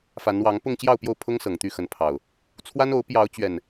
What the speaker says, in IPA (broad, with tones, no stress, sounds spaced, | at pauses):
f a˨˦ n w ɑ˨˦ ŋ p ʊ˥˨ ŋ t͡ɕ j ɑ˥˨ ʊ̯ p j o˥˨ ʊ̯ pʰ ʊ˦ ŋ s ɤ˨˩ ŋ t̪ y˥˨ x ə˨˦ n pʰ ɑ˨˩ ʊ̯ | t͡sʰ w a˦ n o˨˦ ʊ̯ p j ɑ˨˦ ʊ̯ t͡ɕ ɥ ɛ˨˩ n